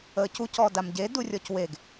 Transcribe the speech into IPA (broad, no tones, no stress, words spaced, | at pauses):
əːcu cɔdamɟe durʲɔcweɡ